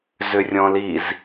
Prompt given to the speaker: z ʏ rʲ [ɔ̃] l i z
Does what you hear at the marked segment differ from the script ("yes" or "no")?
no